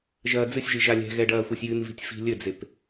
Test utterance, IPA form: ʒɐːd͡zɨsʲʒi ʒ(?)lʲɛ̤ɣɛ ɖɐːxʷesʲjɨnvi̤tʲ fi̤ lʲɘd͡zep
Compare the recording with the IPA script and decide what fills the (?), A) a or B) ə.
A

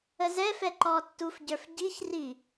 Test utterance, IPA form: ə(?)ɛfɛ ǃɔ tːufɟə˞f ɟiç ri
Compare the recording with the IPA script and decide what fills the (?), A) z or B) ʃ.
A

